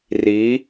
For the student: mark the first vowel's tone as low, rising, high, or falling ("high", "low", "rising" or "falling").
rising